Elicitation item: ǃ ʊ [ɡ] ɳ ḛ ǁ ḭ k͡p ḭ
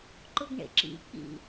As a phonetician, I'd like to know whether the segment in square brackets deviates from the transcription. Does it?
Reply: no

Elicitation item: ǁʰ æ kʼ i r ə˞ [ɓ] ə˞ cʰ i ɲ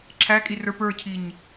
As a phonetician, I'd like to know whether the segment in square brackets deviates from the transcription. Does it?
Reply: yes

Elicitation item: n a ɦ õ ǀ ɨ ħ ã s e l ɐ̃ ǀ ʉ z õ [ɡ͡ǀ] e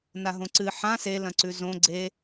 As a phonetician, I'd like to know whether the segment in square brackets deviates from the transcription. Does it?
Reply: no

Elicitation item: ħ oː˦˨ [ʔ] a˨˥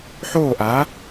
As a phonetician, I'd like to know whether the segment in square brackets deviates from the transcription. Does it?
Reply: no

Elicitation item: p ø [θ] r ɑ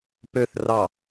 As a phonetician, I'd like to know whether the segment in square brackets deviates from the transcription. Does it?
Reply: no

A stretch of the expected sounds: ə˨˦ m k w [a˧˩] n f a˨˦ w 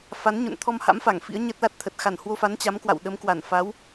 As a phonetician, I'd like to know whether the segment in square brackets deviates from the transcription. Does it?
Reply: no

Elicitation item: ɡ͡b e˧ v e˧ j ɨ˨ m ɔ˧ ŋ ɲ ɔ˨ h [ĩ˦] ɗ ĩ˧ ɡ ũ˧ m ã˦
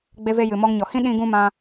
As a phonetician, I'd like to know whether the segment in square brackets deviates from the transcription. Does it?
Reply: no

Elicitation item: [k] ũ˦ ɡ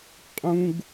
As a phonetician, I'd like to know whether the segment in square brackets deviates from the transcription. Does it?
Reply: yes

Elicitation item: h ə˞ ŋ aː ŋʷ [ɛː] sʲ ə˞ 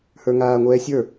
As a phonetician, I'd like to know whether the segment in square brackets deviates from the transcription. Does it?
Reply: no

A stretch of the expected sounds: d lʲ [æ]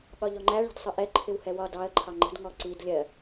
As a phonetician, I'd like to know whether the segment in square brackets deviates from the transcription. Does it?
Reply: yes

